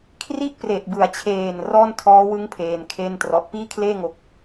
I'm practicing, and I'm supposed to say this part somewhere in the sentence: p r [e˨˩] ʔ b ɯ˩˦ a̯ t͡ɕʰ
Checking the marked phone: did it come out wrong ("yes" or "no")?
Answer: no